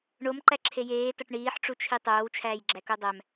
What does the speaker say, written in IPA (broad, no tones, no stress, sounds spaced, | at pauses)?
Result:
ɳ o m ǃ æ ǁʰ e j eː t ɒ ʈ ɳ iː ħ ʈ͡ʂ u t͡ʃʰ i tˤ oː w t͡ʃʰ æː j ɡ͡ǁ æ k o dˤ æ m